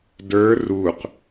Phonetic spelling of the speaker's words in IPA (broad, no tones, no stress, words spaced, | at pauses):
də˞ ruq